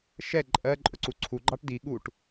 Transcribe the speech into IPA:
ʃ ɛ ǃʼ ɜ ǃʼ ʊ ǀ u ǀʰ u ɡ͡ǃ ɑ ʈ d i ɠ u ʈ

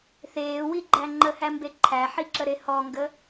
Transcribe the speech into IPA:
θ eː w i ɡ͡ǃ æ ŋ͡ǃ ə h æ m b e ǃʰ æ ħ i ǁ ə ɾ e h ɔ ŋ ɡ ə

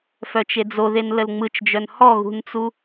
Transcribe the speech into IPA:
f œ t͡ʃ e d͡z o ð e n l ə l ŋ͡m ɯ t͡ʃ d͡ʒ œ n h ɔ ɣ ṳ n t͡s u

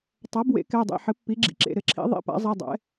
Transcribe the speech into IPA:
tˤ a˩˥ b w ḛ˩˥ k ɛ˩˧˩ dˤ ḭ˩˧˩ ħ ɘ˩˥ pː i˩˥ ɡ͡ǁ ḭ˩˥ ǁ ḛ˩˧˩ ɾ ɘ˩˧˩ ǁʰ ḭ˩˥ ðˤ ḭ˩˧˩ p a̰˩˥ zˤ i˩˧˩ dˤ ɛ̰˩˥

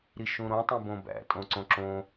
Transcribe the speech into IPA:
ɾ i ʃ ũ ɾ õ tˤ ĩ b õ b æ̰ tʼ õ ǀ õ ǁ õ

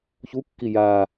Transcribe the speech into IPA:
ç u kː i j aː

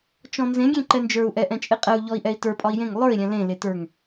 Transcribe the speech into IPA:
t͡ʃ ɔ̃ n z ẽ ɡʲ ẽ ǃ ɛ n d͡ʒ ə˞ u̯ ʔ ɛ ʔ ɛ̃ t͡ʃʼ e qʼ ɛ u̯ ʎ ɔ i̯ ʔ ɛ i̯ t ə˞ pʼ ɒ i̯ j ẽ ŋ lˠ ə˞ i̯ ɾʲ ɛ̃ l ẽ l e t ə˞ ŋ

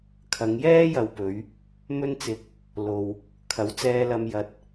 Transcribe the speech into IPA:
kʰ ɐ˨˧ ŋ j ɛː˥ j ɐ˨ w p ɵ˨˧ ɥ | m ɵ˥ n t͡s ɪ˧ k̚ | l o˨ w | kʰ ɐ˨˥ w t͡s ɛː˧ l ɐ˧ m j ɐ˧ t̚

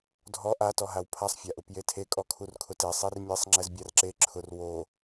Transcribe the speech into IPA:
dʱ ɔ ʔ a t ɔ ɦ a w pʰ a sˤ fʲ a ʔ ʊ p j e tʰ e kʼ ɔ kʰ u r kʰ ʊ t e sˤ i r mʲ e sˤ ŋ͡ǁ ɛ z bʲ a r ǁ e ǁʰ ʊ r w o

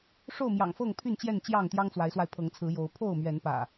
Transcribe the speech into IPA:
ʂ o˥˨ ʊ̯ m j ɑ̰˨˩ ŋ f ɤ˥˨ ŋ pʰ y˥˨ n t͡ɕ j ɛ˥˨ n t͡ɕ j ɑ˥˨ ŋ t̪ j ɑ˦ ŋ t͡s w a˨˦ ɪ̯ s w a˧ ɪ̯ pʰ ɤ˨˦ ŋ t͡sʰ ɹ̩˨˦ j o˨˦ ʊ̯ pʰ o˥˨ ʊ̯ m ɥ ɛ˨˦ n p ä̰˨˩

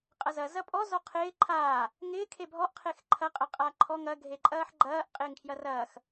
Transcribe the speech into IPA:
qʼ ɐ z ɐ z ɐ pʼ ɔ z ɔ qʰ ɪː ǃʰ aː | ŋ ɪː kʰ e bʱ ɔ ʔ qʰ e x ǃʰ ɐ qʼ ɐ qʼ a ǃʰ ɔ ŋ ɐ ɡʱ e ǃʼ ɐː ħ ɡ͡ǃ ɐː ʔ qʼ ɪː ŋ kʰ j ɐ r ɐː x

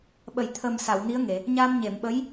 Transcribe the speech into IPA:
ɓ ə˨˩˨ j t̪ʰ ə˨˩ m s a˨˩˨ w n i˧˥ ə̯ ŋ e˨˩˨ | ɲ a˧ m ɲ e˨˩˨ m ɓ ə˧˥ j

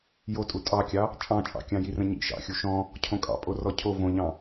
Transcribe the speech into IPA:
j o tʼ u tʼ ɑ kʲ ɑ | t͡ʃʼ ɑ̃ t͡ʃʼ ɑ̰ kʲ ɑ̃ j i r ə̃ ɲ ḭ ʃ ɑ̰ xʲ u ʃ ɔ̃ | cʰ õ kʼ ɑ̰ pʼ o r ɔ cʰ o v õ ʎ ɑ̃

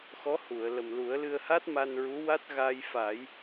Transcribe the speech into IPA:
x ɔ˧˥ h u˨˩˨ ə̯ l ə˨˩ m l u˨˩˦ ə̯ l ɨ˧ ə̯ h a˦˥ t̚ m a˧ n ɹ u˧˥ w a˦˥ t̚ ɣ a˧ j f a˨˩˦ j

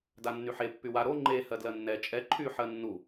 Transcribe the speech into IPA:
d a nː y ħ e pː y w a ɾ o ŋ͡ǃ e h ɜ d l ɜ nː ɛ t͡ʃʼ ɛ ǃʰ y ħ ɜ nː u

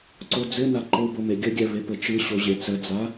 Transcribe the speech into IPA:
ǀ o d͡z ɘ n a ǃ o b o m e ɡʲ ə ɡʲ ɛ v e p ɘ t͡ʃ ɯ ɕ o ʑ e t͡s ə d͡z a

